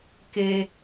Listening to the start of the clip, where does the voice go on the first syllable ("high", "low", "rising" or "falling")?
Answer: low